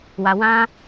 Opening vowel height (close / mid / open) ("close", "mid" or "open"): open